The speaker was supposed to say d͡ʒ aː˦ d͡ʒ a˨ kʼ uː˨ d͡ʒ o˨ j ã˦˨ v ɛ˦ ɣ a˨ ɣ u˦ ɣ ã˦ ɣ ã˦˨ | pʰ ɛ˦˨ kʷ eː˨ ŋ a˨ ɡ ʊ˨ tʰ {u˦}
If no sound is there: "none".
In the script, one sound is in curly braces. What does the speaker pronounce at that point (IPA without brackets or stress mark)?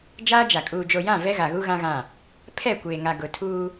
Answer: uː˦